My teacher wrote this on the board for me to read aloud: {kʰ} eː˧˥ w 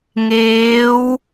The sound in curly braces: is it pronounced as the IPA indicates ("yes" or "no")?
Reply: no